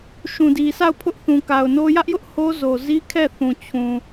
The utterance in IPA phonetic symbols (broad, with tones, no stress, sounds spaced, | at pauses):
ʃ ũ˨ d i˨ sʰ a˦˨ ʊ̯ pʰ ʊ˦ ʔ θ ũ˨ k a˨ ʊ̯ n o˦ j ä˦ ʔ j ʊ˦ ʔ h o˦ z o˨ z i˦ kʰ ɛ˦˨ θ ũ˨ t͡ɕʰ ũ˨